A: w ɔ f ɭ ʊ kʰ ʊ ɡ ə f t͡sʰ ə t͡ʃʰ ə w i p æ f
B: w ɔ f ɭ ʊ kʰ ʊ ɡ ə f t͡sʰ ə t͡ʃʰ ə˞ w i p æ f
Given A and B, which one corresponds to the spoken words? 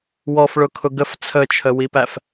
A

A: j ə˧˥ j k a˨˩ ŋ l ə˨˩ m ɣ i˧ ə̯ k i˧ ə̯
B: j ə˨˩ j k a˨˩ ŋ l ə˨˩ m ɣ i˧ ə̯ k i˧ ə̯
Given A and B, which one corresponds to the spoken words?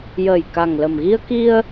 B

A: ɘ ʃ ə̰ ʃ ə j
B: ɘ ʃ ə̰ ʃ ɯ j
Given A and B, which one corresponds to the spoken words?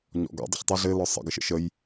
A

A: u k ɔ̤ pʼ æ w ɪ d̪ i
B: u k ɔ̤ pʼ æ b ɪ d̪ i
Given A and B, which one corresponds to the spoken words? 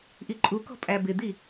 B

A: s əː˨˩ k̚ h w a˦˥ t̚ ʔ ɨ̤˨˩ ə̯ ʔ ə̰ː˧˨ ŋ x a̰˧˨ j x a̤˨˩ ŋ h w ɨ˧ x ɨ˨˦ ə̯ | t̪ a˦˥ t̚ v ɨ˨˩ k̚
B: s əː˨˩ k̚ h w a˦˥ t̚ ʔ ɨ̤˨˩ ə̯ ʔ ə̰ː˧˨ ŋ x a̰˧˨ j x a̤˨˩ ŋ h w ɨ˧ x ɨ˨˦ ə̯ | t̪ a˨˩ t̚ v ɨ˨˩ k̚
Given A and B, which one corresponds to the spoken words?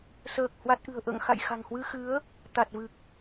B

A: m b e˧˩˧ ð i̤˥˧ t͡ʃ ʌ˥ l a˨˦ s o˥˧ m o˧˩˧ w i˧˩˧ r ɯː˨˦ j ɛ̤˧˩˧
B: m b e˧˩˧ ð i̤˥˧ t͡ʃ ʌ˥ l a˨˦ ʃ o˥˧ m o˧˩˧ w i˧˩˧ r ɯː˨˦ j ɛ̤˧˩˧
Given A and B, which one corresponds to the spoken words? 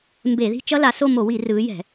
A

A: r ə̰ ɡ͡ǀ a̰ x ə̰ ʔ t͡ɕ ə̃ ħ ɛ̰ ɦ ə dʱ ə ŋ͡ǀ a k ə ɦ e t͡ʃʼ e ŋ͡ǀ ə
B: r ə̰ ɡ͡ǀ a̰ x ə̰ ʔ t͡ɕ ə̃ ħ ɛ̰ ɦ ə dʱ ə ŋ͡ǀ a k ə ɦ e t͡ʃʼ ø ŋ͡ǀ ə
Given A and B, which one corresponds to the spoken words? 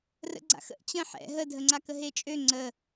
B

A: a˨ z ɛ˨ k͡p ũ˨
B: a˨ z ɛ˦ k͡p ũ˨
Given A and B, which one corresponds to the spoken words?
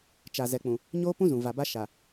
A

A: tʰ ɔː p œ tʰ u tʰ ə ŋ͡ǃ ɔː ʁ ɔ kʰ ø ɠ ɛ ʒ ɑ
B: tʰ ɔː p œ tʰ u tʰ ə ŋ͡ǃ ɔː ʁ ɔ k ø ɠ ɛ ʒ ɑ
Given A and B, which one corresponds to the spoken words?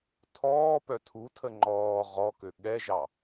B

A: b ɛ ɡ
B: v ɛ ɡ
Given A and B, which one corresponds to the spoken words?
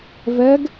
B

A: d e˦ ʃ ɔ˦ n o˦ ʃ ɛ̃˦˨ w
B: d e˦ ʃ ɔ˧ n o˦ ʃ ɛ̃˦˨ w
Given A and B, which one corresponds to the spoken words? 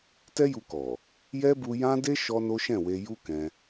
A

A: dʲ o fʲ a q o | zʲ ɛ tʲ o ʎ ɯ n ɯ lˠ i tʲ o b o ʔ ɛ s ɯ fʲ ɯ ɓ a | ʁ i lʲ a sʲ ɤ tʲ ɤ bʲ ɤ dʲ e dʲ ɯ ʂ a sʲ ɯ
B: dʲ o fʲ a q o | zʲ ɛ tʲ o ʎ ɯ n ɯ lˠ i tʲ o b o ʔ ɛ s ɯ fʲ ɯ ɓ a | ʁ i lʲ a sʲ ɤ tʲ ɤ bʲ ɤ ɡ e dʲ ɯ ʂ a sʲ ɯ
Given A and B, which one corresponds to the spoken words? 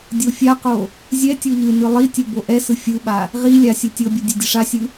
A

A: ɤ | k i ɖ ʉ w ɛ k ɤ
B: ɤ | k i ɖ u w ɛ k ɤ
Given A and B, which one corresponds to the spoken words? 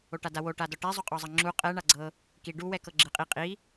B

